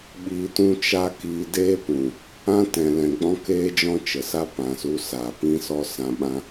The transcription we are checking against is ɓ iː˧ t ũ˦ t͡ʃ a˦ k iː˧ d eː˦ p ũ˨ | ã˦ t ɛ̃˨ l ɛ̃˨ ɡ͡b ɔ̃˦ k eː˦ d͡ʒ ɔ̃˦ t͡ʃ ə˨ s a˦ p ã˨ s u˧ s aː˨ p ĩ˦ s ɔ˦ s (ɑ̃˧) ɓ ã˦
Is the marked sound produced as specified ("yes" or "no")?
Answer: no